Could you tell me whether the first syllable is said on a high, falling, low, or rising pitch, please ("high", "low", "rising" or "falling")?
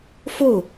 falling